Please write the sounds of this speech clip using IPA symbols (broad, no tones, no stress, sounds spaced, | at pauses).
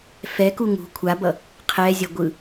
f ɛ k u ŋ ṳ kʷʰ a b ʌ | qʰ ɛ zʲ ʌ ɡʷ ɯ